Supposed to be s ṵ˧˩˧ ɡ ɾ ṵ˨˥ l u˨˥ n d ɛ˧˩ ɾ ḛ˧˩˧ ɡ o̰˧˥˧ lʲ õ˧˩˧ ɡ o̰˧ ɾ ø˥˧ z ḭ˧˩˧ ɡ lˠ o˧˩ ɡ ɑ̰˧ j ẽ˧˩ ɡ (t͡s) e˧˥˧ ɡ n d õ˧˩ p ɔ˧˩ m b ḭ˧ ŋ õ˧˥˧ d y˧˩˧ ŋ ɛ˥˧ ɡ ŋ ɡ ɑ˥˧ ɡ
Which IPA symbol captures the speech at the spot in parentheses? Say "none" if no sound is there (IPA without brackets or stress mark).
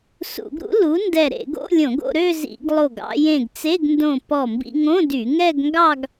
t͡s